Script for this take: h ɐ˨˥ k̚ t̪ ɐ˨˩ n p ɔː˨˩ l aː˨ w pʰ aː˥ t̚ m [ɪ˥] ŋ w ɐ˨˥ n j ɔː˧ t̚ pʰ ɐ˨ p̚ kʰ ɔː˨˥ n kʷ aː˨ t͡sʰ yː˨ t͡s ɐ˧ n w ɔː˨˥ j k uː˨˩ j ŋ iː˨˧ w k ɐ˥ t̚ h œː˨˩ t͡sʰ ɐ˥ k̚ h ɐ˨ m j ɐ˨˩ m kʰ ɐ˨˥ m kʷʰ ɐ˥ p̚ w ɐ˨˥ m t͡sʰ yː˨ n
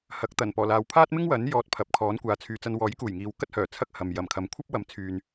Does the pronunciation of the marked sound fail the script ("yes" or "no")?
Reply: no